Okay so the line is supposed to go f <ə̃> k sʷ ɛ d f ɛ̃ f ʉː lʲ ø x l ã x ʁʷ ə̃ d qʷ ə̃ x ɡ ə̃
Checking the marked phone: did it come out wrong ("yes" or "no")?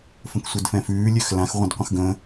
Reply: no